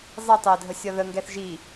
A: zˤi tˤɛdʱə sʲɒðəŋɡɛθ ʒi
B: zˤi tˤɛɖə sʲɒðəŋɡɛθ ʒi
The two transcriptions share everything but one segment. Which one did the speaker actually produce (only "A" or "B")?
A